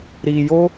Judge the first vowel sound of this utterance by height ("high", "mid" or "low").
high